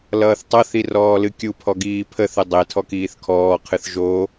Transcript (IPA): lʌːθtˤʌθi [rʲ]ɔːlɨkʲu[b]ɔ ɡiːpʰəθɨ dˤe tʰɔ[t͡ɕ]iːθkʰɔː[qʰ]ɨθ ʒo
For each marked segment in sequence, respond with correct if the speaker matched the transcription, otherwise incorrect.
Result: incorrect, incorrect, incorrect, correct

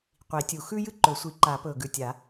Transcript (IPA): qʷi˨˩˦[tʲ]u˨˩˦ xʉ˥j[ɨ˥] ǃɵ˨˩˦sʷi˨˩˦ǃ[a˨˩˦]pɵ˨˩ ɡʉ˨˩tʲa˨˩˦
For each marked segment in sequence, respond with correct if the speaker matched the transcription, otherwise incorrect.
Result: correct, correct, correct

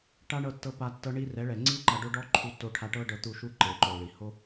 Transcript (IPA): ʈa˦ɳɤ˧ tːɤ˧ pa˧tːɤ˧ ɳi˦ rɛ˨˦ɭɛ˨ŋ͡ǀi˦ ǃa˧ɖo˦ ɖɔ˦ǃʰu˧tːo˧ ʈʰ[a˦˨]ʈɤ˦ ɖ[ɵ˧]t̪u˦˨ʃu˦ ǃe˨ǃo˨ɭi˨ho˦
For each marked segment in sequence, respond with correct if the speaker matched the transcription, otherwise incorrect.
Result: incorrect, incorrect

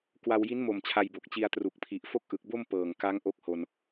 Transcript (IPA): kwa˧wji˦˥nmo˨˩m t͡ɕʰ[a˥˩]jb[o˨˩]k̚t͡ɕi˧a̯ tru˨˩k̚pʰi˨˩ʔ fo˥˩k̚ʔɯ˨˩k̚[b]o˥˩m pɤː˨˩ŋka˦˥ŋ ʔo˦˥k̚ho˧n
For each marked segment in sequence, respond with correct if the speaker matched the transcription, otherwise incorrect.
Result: incorrect, correct, correct

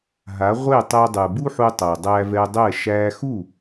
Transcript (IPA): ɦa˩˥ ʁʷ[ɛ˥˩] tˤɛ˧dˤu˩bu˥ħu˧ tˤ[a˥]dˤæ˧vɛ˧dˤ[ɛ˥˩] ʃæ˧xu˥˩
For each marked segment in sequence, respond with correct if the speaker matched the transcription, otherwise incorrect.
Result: incorrect, incorrect, correct

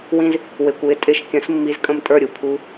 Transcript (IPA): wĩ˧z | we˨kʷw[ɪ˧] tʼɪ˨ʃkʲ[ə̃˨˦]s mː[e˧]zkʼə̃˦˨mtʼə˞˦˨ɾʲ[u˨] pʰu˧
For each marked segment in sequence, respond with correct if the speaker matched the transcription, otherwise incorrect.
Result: incorrect, correct, incorrect, correct

